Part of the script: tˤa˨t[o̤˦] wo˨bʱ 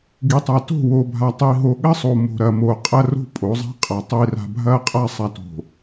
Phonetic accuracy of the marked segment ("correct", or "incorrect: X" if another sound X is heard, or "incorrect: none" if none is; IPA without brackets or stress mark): incorrect: o̤˦˨